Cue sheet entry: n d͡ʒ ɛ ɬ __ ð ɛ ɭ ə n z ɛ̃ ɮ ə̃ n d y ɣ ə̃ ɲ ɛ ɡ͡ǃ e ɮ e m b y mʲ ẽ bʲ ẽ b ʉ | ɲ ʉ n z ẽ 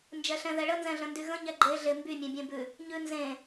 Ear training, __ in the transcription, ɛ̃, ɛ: ɛ̃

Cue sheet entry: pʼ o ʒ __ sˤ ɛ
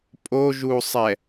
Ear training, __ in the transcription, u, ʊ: u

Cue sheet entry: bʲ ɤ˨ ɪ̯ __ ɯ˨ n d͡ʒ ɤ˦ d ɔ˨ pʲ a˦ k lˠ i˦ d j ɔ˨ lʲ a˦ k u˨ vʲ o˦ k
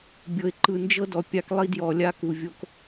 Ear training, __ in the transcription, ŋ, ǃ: ǃ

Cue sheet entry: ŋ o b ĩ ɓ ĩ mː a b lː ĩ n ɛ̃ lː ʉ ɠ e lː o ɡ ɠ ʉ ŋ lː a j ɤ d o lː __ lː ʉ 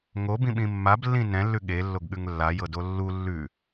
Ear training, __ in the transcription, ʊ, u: u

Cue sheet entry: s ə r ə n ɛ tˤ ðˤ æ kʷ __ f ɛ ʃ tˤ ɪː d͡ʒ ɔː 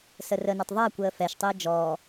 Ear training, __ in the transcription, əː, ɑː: əː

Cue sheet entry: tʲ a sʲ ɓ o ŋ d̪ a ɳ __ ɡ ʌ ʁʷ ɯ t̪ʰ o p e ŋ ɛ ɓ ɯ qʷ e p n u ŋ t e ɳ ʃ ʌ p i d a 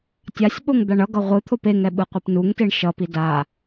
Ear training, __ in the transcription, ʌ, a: ʌ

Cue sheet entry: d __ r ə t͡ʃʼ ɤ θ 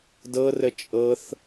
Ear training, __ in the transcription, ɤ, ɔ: ɤ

